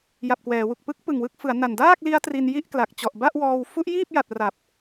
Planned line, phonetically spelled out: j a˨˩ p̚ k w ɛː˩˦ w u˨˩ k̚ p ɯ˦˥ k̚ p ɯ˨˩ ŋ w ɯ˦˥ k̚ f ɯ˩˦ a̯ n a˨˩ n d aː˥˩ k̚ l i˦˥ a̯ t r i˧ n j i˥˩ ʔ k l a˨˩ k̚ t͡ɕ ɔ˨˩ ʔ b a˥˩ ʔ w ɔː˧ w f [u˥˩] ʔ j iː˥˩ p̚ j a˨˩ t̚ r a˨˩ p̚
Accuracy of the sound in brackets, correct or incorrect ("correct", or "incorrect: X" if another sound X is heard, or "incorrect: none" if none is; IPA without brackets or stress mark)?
incorrect: u˦˥